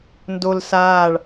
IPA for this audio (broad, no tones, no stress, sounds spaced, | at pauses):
n d o l s aː ɭ